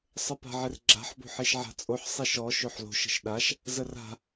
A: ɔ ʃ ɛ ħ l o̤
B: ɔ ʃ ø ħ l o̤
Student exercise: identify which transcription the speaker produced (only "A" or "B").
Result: B